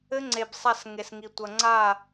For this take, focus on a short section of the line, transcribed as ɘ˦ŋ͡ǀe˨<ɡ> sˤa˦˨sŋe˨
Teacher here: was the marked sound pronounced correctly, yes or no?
no